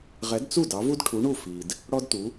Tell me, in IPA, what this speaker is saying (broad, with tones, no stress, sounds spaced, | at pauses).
ʁ ɛ˨˥ d t͡s u˥˩ d ɑ˨˥ v u˥ d ʈʰ u˨˥ ɳ u˥˩ f i˨ d | ɽ ɔ˥ d t u˨˥